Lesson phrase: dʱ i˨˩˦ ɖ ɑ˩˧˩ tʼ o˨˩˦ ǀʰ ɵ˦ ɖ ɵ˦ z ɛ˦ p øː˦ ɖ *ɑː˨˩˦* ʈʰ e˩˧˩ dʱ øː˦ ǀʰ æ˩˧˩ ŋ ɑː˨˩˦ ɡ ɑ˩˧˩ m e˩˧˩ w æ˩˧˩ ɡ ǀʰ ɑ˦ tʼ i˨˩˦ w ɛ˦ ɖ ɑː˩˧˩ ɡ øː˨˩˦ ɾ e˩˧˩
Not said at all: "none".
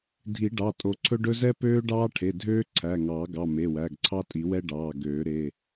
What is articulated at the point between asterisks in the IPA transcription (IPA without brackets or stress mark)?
ɑː˦